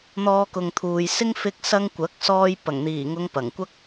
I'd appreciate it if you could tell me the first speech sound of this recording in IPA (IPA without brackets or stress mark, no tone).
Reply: n̪